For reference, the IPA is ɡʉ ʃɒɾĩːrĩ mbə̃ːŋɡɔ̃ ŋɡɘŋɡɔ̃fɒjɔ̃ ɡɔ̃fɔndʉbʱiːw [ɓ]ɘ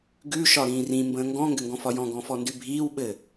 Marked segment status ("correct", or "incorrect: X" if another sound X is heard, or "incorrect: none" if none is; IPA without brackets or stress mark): correct